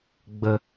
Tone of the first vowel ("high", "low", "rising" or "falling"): low